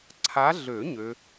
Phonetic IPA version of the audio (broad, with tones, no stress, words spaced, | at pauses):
ǀʰa˨˦ɮø˨˩˦ ɲø˨˦